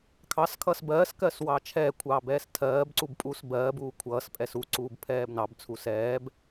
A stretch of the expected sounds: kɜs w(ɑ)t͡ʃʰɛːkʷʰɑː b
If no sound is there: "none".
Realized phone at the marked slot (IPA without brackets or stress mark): ɑ